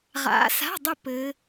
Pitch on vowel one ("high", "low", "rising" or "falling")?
rising